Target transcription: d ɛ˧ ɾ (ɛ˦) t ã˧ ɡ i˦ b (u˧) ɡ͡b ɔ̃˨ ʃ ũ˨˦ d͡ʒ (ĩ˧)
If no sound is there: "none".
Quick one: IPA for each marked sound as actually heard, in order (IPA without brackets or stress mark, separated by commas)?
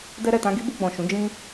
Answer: ɛ˨, u˧, ĩ˧